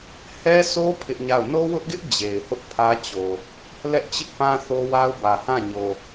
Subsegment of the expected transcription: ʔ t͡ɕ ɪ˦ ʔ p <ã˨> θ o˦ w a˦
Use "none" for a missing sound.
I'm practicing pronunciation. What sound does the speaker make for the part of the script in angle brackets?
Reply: ã˦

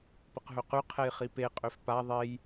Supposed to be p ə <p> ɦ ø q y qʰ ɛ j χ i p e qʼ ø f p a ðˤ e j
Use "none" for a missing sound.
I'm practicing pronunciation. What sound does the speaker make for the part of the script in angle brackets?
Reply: q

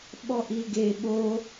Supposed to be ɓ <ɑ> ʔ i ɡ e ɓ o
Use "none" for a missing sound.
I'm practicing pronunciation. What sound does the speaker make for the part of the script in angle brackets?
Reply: ɔ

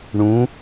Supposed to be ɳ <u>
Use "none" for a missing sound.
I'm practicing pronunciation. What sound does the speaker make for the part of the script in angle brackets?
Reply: ũ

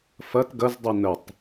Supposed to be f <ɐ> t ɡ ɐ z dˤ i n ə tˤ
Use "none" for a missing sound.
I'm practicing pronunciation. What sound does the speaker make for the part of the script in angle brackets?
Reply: ɐ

